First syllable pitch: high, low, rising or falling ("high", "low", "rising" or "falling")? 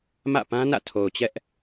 falling